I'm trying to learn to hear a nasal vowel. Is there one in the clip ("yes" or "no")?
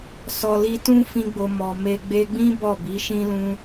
yes